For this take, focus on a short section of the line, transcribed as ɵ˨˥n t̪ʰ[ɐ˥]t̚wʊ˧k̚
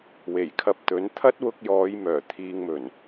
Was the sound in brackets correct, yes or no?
yes